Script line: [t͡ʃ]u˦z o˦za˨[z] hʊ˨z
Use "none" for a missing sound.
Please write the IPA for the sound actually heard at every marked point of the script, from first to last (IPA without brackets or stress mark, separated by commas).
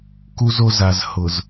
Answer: k, z